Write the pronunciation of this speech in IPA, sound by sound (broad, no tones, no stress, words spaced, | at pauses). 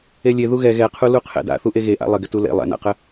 elʲe ðuɣɛ ɣɛqʰu luqʰɛ̰da̰ θuʔeɣeʔa̰ lˠɪɡɪtu lḛ lˠɛ̰na̰qə